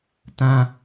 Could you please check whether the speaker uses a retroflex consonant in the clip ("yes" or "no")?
no